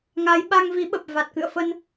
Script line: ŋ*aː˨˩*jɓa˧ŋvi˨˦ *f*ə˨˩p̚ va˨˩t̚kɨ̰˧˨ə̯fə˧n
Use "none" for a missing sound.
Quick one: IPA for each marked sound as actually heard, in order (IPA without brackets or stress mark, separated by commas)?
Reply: aː˨˦, ɓ